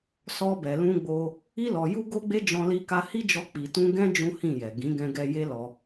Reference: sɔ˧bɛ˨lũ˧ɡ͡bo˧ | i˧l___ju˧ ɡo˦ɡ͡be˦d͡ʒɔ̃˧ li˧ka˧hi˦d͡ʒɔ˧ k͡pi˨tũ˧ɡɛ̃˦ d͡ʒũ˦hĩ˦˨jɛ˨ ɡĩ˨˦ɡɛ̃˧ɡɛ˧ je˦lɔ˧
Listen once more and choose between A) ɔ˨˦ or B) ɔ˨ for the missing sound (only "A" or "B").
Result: B